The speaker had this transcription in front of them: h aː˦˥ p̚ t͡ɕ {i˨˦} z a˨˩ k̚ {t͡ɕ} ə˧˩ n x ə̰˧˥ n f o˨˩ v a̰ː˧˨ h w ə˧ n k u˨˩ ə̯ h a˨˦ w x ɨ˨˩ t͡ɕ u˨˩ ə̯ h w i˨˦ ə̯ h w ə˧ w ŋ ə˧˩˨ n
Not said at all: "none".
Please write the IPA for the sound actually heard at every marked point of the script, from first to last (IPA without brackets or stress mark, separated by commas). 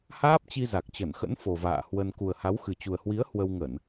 i˧, t͡ɕ